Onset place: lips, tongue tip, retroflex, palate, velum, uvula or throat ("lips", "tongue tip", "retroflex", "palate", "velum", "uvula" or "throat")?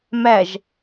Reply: lips